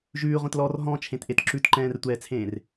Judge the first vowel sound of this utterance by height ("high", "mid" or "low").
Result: high